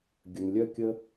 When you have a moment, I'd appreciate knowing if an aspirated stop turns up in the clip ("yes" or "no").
no